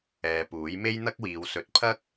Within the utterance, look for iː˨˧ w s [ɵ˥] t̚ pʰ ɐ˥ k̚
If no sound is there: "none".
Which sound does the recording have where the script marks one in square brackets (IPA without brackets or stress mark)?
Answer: ɵ˧